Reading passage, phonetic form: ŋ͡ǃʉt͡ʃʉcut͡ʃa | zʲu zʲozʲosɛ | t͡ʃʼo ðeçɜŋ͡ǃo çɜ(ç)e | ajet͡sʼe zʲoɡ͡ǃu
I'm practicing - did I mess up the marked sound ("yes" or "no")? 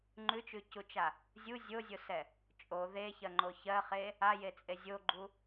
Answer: yes